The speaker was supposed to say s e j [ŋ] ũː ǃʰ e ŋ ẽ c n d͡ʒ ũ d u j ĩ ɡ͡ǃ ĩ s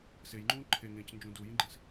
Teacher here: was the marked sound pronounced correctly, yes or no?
no